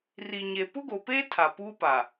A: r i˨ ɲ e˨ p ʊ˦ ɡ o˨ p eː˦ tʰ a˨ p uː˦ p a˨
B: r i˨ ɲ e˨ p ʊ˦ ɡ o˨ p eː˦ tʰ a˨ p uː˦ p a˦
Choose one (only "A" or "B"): A